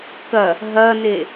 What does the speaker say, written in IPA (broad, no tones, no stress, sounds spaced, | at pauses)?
k ɐ | ɦ ɐ n̪ e